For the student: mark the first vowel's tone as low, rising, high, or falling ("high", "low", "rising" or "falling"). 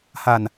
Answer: low